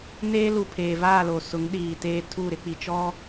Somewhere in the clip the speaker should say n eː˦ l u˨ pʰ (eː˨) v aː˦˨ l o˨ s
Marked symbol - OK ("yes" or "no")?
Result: yes